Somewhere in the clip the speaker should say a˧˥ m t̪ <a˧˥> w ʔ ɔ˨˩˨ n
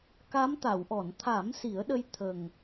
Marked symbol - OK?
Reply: no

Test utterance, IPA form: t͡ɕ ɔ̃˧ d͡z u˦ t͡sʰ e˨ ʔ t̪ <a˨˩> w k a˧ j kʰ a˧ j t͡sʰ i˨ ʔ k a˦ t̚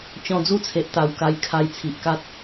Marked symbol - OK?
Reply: yes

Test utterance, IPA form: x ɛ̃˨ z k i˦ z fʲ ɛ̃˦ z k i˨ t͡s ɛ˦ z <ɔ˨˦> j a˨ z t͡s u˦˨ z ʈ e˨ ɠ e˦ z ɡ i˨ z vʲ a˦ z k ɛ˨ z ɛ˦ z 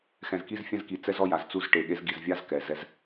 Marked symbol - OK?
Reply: no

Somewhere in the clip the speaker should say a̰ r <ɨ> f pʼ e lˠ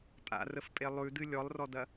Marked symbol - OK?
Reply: no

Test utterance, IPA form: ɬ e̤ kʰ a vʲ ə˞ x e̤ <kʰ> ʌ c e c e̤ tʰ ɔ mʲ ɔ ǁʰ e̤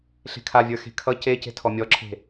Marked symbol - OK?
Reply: yes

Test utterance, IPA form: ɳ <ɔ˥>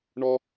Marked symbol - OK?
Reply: yes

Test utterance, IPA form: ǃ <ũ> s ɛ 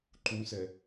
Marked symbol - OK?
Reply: yes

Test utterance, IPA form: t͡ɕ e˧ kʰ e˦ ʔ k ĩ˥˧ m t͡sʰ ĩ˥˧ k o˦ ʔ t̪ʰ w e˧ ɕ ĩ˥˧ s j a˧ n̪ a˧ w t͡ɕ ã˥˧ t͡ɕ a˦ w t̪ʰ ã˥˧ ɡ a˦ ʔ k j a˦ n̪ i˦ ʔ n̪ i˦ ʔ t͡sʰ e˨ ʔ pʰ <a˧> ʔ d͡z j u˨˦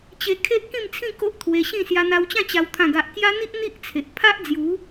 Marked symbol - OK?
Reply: no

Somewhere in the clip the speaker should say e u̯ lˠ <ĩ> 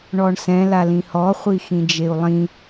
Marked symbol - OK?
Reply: yes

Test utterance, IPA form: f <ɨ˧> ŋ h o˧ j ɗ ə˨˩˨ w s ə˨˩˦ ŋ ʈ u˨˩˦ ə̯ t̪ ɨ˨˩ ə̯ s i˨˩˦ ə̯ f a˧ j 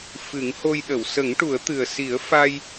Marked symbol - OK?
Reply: no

